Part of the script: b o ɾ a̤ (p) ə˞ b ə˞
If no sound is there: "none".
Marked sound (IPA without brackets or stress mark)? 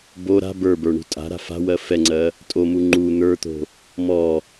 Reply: b